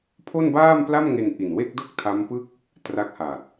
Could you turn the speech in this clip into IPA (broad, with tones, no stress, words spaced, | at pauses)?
pʰo˥˩nbaː˥˩mpla˥˩mŋe˧n ʔi˨˩nwe˥˩k̚do˥˩k̚ tʰa˦˥mpɯ˥˩k̚ | tra˦˥k̚ha˨˩t̚